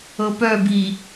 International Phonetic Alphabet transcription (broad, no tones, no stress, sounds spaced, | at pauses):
ɤ p œ b i